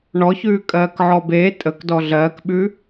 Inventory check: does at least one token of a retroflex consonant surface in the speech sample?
yes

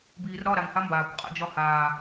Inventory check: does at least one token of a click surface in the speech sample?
no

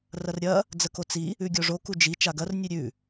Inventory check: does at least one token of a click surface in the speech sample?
no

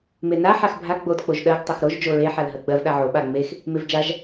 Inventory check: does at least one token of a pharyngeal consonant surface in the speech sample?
yes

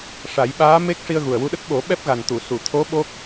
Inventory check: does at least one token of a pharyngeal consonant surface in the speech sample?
no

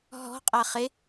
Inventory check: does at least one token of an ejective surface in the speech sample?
yes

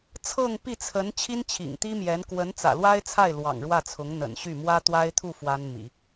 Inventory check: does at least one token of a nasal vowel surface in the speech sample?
no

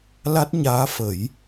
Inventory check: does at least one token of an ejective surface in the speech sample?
no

